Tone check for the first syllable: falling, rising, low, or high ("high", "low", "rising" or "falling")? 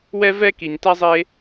high